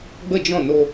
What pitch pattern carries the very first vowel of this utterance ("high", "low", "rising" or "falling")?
falling